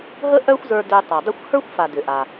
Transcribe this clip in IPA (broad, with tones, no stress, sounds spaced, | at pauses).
ɦ ə˥ ʔ œ˥ xʷ z ə˞˧ d ø˧ tˤ a˩ dˤ ə˥ xʷ h ə˞˥ xʷ f a˩ d ʏ˩ ʔ a˩